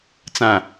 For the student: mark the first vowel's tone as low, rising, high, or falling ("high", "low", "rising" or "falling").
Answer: low